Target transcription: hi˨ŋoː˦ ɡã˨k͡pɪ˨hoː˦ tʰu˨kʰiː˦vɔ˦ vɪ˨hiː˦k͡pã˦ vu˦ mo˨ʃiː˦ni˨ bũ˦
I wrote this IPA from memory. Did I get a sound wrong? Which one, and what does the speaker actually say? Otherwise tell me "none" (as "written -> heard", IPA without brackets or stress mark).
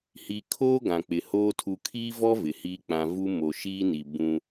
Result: ŋ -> kʰ